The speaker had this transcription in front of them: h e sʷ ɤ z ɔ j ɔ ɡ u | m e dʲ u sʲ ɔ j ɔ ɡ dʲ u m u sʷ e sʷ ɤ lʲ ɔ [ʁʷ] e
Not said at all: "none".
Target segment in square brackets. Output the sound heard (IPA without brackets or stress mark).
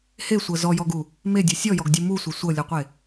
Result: qʷ